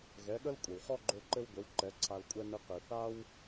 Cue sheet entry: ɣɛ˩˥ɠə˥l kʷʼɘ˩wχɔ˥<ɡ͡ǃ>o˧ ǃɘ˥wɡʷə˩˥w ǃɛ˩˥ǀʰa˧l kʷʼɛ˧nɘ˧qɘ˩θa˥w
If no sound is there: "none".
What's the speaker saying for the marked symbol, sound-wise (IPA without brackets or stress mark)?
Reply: ɡ͡ǃ